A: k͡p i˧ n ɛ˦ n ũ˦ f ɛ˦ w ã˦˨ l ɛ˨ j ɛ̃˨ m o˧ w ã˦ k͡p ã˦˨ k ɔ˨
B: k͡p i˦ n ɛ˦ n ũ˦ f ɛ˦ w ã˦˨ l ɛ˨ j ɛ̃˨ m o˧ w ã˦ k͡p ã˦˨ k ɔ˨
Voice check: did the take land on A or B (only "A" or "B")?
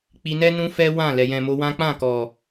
A